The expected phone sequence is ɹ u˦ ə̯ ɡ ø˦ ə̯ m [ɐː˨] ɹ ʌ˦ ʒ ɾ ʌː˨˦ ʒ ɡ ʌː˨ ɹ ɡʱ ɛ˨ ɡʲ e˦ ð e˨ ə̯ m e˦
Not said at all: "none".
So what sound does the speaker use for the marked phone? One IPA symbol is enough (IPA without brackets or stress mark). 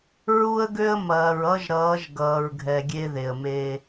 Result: ɐː˨